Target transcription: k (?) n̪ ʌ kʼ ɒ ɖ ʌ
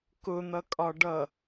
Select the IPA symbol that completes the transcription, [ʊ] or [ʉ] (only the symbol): ʊ